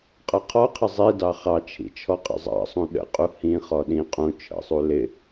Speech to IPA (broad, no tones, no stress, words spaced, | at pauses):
qʼʌqʰɔqʰɪ zˤi dɑχɑt͡ʃʰḭ t͡ʃʰɔqʼə̰zˤɑ̰sˤũ ɗə̰ qʼuhĩχɔ ɗĩ qʼũ t͡ʃʰə̰sˤu lɪ